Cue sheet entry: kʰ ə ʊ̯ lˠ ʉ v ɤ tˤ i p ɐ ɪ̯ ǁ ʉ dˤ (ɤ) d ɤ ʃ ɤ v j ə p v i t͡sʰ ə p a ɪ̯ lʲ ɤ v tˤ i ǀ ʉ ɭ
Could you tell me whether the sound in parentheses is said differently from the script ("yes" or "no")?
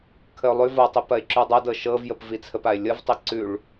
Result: no